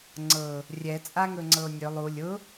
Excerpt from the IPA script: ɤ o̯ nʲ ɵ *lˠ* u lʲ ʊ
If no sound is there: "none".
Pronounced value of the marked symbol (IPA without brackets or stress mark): lˠ